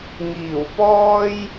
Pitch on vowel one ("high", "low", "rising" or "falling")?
low